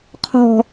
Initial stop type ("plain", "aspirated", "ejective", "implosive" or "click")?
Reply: aspirated